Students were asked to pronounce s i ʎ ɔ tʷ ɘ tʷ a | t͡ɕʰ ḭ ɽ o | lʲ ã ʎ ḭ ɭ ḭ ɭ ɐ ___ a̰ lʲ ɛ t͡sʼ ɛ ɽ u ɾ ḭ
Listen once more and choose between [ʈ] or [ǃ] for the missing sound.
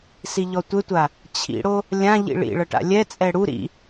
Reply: ʈ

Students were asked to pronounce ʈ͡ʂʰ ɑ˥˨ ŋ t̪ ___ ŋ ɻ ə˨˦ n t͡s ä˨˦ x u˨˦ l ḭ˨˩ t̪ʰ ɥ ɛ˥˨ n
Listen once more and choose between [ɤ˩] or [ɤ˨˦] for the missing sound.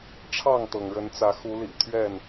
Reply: ɤ˩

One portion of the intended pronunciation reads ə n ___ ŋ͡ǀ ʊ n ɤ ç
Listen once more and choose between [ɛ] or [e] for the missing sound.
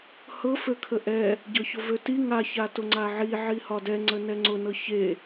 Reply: ɛ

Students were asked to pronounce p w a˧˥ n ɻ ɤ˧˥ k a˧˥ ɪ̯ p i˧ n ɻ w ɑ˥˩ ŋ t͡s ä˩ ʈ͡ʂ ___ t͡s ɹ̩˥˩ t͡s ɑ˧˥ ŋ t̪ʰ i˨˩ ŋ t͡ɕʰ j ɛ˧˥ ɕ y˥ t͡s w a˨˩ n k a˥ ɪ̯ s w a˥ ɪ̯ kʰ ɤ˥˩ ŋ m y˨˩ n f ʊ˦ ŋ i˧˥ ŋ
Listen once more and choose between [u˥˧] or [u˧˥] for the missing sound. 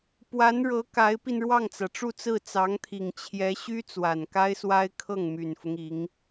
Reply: u˥˧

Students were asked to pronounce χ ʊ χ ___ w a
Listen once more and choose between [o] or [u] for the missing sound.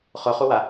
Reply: u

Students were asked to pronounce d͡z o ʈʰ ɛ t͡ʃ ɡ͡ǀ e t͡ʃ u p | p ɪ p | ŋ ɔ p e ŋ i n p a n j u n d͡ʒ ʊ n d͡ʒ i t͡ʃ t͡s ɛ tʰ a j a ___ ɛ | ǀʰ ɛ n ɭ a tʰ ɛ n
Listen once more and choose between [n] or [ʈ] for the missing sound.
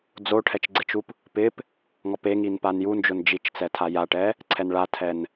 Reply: ʈ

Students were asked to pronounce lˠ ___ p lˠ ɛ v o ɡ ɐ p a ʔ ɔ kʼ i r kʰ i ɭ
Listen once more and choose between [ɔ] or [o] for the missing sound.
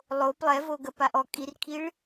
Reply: o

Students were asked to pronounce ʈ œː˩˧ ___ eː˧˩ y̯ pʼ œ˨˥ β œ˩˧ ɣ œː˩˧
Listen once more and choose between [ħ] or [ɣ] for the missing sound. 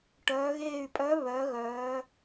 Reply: ɣ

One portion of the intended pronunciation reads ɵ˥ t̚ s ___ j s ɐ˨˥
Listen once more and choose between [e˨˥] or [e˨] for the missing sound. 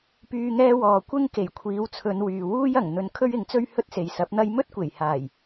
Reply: e˨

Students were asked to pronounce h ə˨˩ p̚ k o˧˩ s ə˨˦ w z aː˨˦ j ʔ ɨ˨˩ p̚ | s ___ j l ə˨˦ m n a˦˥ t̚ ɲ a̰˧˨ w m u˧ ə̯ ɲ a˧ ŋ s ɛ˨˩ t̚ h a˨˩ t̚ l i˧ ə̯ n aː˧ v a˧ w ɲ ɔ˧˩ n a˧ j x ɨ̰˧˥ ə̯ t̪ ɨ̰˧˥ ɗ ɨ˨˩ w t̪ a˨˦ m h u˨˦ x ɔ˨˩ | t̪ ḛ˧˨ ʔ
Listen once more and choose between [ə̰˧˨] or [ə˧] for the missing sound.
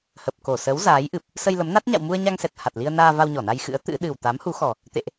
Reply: ə˧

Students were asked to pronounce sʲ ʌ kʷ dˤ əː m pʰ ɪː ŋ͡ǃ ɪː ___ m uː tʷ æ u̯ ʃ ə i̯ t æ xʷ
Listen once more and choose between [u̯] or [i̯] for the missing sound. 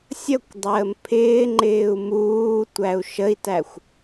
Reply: u̯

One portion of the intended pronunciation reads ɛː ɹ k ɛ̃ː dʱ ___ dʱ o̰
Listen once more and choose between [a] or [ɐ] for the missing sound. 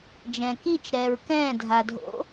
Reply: a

